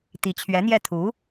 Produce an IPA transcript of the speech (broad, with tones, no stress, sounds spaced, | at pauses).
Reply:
t̪ i˧˥ t͡ɕʰ ɥ ɛ˧˥ n̪ j ɛ˥˩ t̪ʰ u˧˥